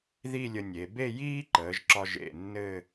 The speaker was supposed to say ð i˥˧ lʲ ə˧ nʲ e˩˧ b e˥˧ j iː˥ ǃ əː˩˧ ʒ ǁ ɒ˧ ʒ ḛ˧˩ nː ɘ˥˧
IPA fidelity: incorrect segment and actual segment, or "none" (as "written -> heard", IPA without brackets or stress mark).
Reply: none